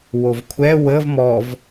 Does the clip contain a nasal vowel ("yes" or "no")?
no